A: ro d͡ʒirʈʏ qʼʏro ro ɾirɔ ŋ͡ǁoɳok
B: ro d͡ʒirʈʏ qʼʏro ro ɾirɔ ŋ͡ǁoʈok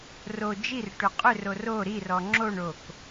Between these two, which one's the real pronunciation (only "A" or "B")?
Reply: A